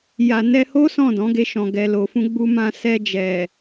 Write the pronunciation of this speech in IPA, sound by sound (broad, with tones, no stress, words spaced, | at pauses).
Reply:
ja˨nɛ˧ho˦ sɔ̃˦˨dɔ̃˨˦ɡe˧ʃɔ̃˨ ɡɛ˨lo˨fũ˧ ɡ͡bu˧mã˧ sɛ˧d͡ʒɛ˨